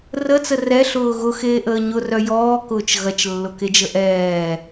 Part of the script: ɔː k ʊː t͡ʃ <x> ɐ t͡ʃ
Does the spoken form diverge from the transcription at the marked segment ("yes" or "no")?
yes